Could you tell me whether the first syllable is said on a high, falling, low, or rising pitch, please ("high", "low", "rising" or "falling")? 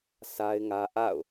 high